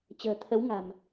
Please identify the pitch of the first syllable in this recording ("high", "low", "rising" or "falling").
low